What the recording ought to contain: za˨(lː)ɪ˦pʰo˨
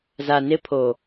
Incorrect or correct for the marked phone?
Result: incorrect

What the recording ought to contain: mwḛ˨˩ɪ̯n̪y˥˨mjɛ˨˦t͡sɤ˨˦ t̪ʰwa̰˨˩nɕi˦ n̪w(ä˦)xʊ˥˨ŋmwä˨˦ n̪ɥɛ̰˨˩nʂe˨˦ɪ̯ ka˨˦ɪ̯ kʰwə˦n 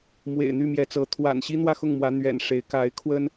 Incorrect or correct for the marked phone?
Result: incorrect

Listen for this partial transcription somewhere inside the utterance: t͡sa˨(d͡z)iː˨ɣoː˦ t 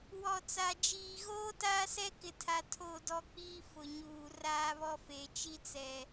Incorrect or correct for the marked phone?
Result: incorrect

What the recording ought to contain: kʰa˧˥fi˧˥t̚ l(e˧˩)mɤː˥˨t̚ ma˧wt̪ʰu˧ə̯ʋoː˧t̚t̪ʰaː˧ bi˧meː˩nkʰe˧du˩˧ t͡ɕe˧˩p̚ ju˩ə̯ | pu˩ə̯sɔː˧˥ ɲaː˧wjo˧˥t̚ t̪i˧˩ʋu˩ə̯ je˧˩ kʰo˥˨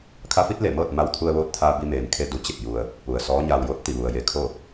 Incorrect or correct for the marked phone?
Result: correct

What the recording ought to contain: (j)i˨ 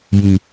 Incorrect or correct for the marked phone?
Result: correct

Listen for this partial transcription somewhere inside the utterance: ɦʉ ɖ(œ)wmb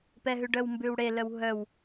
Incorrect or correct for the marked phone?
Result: correct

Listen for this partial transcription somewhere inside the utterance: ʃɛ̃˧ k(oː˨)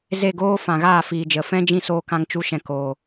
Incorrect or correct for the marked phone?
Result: correct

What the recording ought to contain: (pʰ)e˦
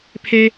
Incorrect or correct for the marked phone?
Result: correct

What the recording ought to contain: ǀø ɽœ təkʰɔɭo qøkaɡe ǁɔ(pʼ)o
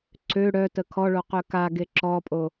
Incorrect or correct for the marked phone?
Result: correct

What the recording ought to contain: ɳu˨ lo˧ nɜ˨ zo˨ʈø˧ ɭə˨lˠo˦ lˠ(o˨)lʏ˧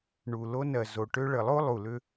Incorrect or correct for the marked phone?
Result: incorrect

